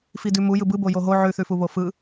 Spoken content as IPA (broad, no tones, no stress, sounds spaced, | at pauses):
f i d ʉ m u j ɯ b ɯ b o j o ɦ o ʕ ʉ θ ʉ f u β o f ɯ